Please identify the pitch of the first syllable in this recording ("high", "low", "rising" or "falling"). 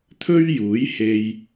high